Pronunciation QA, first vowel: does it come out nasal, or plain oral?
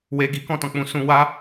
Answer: oral